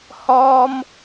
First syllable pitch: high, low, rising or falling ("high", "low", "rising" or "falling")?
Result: high